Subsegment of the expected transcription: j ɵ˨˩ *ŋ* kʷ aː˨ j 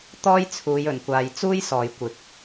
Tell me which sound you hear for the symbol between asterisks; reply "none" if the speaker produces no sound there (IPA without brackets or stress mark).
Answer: n